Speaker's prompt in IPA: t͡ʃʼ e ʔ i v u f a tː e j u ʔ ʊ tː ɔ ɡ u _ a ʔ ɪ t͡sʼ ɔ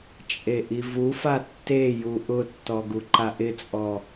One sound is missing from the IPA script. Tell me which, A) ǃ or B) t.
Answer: A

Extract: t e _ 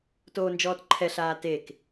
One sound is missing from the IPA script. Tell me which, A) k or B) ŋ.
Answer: A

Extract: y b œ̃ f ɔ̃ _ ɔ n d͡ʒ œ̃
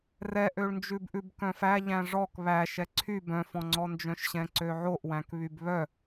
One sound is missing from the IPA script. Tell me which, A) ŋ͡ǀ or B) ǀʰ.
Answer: A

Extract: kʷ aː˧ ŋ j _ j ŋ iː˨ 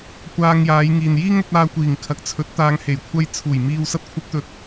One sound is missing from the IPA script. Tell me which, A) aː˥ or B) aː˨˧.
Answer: B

